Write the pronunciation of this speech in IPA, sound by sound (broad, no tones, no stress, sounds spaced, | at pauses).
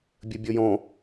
bʲ ɜ bʲ ɔ j ɔ̃